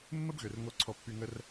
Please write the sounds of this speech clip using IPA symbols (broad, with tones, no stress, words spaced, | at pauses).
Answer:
mːə˦bɣø˨r ŋo˧ǀʰɔ˧pːy˧ŋə˦r